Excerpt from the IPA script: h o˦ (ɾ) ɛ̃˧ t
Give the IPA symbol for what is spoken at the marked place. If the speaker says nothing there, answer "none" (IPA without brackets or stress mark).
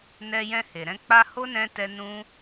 n